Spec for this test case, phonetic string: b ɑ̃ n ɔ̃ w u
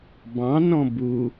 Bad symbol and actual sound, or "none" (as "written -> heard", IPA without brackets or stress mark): w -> b